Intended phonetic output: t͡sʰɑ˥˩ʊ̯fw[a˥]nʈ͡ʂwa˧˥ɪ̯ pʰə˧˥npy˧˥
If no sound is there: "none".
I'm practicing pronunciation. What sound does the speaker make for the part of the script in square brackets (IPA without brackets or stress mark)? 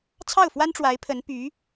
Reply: a˥